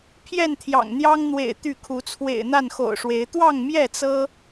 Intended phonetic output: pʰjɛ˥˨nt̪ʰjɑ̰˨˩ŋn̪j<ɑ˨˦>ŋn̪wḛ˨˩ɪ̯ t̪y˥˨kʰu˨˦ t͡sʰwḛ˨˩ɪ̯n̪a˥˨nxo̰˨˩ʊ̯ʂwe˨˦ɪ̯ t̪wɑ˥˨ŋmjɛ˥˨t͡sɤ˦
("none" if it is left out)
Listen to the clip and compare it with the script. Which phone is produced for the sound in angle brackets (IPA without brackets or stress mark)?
ɑ˦